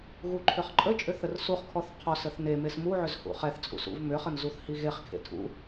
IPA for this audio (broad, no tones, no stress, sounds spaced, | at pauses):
ɣ u ǃʰ ʏ χ ǃʼ ə t͡ʃʼ ʏ θ ə r s u χ kʰ ɔ θ qʰ ɔ s ə θ n e m e s m u ʕ ʏ z h ṵ χ ɛ θ t͡sʼ ṵ s ṵ v m ʏ χ ə n z u θ h i ɣ e χ kʰ ḛ tʰ ṵ